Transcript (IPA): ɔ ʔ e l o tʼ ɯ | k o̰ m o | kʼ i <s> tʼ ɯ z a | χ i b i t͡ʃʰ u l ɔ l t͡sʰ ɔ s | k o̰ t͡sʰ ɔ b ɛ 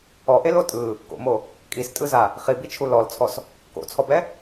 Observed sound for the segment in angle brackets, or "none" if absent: s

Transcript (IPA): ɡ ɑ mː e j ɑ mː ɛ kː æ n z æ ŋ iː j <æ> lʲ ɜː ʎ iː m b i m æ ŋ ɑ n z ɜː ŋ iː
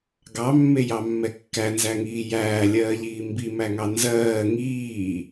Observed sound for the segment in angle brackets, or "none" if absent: æː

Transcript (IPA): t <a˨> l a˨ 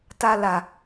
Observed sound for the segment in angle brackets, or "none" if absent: a˨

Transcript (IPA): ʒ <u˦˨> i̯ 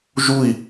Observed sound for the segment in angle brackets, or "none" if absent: u˦˨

